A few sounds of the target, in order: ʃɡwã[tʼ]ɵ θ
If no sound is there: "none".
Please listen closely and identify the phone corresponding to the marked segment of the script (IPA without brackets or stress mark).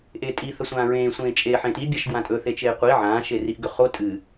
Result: tʼ